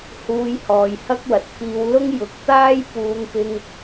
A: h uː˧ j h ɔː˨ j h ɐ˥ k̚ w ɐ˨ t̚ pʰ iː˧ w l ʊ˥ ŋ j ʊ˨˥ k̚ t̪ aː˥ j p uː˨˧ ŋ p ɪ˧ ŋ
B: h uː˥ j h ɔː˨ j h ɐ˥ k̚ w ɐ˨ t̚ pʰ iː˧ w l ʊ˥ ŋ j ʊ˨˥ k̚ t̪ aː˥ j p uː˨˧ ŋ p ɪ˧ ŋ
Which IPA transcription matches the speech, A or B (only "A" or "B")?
A